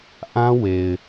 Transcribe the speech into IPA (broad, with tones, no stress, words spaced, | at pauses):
ʔã˦we˨ɪ̯